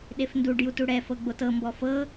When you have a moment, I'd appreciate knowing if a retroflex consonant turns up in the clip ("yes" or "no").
yes